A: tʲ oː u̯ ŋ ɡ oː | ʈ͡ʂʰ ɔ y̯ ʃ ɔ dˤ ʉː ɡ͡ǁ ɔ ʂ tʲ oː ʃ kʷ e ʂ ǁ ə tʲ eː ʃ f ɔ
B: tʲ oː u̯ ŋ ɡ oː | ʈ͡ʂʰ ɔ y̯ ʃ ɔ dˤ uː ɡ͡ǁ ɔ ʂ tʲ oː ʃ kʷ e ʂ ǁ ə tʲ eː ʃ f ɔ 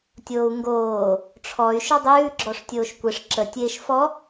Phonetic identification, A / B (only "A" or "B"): A